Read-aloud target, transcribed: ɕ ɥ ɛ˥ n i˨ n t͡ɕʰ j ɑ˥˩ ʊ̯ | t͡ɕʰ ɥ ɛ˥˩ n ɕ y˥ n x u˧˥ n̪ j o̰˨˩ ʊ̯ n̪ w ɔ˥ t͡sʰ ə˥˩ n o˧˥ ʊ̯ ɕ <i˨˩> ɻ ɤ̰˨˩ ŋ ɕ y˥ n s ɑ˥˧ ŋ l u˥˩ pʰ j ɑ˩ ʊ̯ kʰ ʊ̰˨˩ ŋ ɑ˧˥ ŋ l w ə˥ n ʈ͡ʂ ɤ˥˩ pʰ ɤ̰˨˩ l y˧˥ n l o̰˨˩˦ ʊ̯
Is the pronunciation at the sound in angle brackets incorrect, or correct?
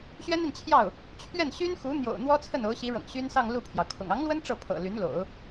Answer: incorrect: i˧˥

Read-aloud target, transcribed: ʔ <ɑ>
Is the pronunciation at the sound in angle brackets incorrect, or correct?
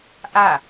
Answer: incorrect: a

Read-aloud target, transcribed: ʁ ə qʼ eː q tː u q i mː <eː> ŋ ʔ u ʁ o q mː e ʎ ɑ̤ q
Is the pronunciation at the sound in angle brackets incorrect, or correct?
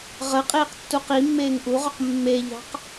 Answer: correct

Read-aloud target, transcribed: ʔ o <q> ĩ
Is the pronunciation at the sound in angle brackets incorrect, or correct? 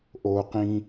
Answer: correct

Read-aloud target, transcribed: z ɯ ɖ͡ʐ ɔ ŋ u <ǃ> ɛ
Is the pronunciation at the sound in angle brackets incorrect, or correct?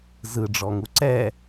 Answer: incorrect: ǀ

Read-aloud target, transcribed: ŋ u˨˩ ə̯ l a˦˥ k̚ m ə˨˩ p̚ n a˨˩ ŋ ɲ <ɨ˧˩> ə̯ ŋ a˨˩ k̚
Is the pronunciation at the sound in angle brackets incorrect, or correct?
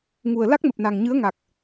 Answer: incorrect: ɨ˨˦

